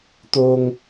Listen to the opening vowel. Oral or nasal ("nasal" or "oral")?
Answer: oral